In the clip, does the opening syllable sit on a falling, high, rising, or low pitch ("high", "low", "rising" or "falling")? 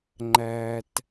low